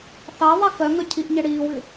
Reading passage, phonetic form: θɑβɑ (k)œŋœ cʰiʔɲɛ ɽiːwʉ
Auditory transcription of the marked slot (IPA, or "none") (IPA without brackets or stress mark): k